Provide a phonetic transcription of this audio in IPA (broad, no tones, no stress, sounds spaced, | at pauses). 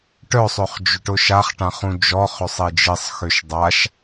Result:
ʈ œ sˤ ø χ d͡ʒ ʏ ʈ ʊ ʃ a χ ʈ ã χ ũ d͡ʒ ɔ χ ʏ sˤ i d͡ʒ i sˤ x ø ʃ dˤ a ʃ